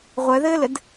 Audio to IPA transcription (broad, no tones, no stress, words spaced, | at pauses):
ʁʷœðɘːlɘd